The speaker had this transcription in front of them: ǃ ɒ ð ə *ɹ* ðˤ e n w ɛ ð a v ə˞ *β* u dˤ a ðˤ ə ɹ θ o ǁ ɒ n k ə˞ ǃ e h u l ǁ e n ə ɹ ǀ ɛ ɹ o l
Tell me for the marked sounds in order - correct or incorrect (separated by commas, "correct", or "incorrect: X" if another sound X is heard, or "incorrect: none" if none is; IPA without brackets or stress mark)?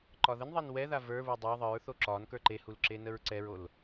incorrect: n, correct